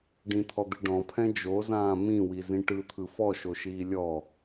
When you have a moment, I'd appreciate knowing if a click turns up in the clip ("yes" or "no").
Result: no